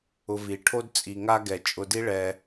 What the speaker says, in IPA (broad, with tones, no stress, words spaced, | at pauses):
ʊ˨ vi˩ ʈʰo˦dt͡sʼi˩ ŋa˦ɡɛ˩ t͡ʃʼʊ˨di˦ ɭɛ˨